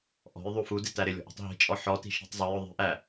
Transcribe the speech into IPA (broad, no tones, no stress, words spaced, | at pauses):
ʔɔ̤j ðˤufudɪ tæɾɪlʲɔ̤ʔ ṳtˤɦi̤t͡ʃʼɔ ħɔti̤ ʃi̤tˤzˤøjʊ ðˤi̤ʔæ